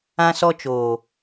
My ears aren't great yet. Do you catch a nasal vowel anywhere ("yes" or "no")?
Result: yes